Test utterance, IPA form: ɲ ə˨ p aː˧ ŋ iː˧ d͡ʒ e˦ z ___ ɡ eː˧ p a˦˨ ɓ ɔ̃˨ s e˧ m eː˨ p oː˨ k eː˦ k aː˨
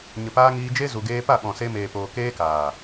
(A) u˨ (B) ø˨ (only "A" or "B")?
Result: A